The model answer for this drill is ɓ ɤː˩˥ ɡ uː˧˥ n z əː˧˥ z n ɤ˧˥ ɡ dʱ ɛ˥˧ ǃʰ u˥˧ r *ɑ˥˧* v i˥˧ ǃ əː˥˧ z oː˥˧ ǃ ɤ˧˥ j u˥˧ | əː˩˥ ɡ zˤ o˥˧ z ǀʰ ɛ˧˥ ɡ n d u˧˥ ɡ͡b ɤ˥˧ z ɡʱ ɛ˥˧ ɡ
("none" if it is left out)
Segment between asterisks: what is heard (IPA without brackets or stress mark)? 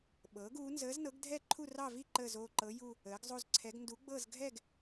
ɑ˥˧